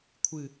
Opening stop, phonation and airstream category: aspirated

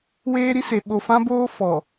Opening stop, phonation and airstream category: implosive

